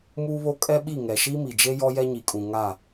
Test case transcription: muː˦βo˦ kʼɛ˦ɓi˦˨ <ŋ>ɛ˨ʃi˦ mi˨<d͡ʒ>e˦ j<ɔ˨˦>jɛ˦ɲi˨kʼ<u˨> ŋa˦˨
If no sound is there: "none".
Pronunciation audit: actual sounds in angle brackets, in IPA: ŋ, d͡ʒ, ɔ˦, ũ˨

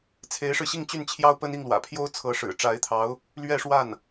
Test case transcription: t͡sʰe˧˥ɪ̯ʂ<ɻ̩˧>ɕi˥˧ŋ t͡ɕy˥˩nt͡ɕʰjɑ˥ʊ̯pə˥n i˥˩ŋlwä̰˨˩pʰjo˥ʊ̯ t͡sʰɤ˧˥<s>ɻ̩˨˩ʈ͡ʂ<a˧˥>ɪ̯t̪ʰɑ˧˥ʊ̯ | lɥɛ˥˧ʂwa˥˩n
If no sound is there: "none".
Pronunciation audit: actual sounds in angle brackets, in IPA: ɻ̩˧, ʂ, a˧˥

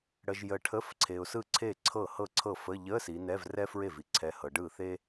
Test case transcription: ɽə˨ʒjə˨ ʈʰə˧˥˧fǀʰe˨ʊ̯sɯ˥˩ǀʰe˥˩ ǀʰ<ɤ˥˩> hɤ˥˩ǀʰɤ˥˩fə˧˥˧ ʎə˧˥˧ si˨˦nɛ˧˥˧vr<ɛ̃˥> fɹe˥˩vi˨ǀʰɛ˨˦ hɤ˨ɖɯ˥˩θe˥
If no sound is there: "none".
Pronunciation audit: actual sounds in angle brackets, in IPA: ɤ˥˩, ɛ˥

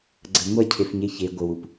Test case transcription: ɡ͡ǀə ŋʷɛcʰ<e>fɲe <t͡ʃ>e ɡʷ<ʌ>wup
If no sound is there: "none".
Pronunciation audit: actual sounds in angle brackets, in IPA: e, ç, ə

